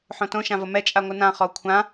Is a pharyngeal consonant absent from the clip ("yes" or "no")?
no